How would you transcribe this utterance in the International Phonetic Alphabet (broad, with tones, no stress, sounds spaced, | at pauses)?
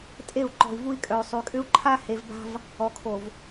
tʼ e˦˨ u̯ ǃ ɔ̤˨ i̯ v u˦ i̯ kʼ œ˨ y̯ sˤ y˨ kʼ ʏ˦ u̯ ǃʰ a˦ h e˨ v b a̤˦ v | ɔ˨ kʰ o˨ v